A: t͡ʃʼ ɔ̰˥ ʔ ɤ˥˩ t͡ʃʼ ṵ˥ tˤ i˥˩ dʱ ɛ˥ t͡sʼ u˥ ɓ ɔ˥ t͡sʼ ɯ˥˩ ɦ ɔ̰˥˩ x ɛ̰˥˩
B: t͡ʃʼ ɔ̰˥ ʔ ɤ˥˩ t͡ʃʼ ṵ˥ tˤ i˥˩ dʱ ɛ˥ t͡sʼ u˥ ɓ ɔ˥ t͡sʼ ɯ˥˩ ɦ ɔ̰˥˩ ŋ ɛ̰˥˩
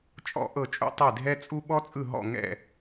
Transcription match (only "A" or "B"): B